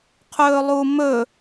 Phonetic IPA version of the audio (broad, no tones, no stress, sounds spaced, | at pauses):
qʰ ɵː lˠ u m ɵ